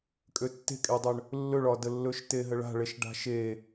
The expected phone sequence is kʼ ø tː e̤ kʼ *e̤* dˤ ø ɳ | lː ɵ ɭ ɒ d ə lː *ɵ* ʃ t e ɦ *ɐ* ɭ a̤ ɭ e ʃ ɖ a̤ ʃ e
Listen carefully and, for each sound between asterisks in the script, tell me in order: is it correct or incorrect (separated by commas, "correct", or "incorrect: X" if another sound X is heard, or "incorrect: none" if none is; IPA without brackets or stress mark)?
incorrect: e, correct, incorrect: ə